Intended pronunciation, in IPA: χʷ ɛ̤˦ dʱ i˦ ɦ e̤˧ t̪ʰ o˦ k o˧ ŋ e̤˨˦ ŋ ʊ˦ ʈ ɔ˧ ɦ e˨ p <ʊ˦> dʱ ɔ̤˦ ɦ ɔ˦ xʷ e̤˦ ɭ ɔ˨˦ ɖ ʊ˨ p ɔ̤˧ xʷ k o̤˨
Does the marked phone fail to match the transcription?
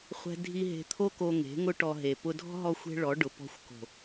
yes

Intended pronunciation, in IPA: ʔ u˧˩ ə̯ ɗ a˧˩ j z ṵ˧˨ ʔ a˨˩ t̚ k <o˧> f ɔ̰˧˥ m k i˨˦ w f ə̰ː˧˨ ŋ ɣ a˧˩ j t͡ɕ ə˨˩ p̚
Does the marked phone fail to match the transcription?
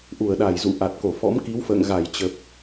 yes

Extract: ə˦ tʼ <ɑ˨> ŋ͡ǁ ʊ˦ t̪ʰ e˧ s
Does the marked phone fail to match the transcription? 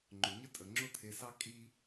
yes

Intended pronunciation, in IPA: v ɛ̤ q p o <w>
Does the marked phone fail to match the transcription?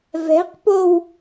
no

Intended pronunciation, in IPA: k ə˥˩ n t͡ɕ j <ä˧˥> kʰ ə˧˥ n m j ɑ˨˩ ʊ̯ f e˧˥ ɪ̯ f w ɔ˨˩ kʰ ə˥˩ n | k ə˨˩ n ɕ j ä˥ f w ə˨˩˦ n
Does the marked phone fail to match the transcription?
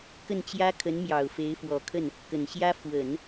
yes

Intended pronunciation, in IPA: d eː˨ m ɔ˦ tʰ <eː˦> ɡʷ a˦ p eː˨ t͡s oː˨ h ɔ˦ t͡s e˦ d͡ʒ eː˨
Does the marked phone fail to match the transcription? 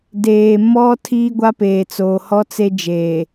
yes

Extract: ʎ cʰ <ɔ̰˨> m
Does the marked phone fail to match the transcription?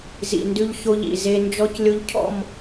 yes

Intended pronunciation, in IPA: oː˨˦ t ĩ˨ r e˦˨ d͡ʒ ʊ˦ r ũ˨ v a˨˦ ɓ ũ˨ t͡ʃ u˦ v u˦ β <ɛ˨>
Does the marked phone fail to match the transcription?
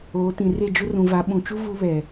no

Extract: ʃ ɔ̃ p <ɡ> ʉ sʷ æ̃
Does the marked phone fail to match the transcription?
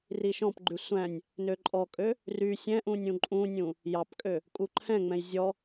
yes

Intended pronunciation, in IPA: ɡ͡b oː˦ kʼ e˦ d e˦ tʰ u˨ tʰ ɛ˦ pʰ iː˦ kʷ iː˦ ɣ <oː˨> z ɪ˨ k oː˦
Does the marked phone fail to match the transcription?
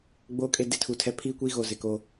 yes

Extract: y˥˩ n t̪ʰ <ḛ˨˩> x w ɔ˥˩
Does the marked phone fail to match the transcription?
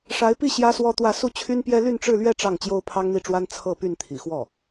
yes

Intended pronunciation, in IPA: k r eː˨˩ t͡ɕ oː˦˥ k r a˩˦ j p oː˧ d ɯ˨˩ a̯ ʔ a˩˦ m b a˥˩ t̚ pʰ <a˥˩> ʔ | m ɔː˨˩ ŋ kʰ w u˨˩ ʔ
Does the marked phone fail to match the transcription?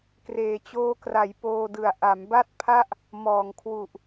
no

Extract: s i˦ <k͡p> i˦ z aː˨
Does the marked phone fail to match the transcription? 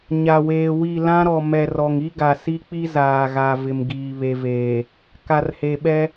no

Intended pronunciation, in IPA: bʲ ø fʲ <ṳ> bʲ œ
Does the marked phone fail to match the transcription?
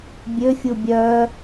yes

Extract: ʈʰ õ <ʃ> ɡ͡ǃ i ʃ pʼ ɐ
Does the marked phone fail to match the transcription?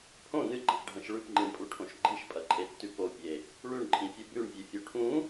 no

